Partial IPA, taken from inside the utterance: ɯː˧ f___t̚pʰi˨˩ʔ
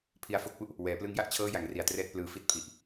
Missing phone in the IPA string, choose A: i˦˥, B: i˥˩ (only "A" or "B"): A